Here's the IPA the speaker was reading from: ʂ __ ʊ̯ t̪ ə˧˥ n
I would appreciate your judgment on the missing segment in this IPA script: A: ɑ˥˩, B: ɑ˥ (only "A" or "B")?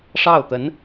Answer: A